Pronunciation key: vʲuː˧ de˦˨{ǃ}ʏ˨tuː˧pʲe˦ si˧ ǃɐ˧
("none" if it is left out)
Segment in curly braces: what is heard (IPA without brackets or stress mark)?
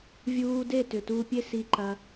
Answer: t